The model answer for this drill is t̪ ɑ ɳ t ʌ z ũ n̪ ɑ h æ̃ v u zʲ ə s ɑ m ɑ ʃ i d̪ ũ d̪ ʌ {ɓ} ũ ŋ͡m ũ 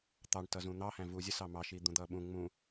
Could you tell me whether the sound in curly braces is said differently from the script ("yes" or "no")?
no